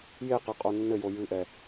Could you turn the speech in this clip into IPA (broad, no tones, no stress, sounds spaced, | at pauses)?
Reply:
j e q ɘ qʼ o nː ɘ j o j ɨ ʔ ɛ